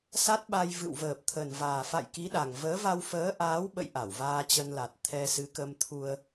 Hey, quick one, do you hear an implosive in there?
yes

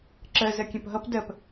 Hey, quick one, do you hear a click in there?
yes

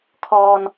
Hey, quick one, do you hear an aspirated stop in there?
yes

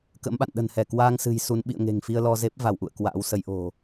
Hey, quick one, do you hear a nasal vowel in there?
no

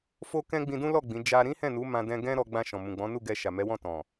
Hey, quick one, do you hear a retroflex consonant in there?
no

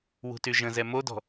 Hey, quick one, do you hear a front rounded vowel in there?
yes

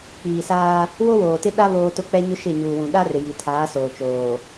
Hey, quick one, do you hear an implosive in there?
yes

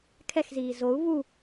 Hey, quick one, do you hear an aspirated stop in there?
yes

